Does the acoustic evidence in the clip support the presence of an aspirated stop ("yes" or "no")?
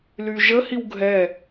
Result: no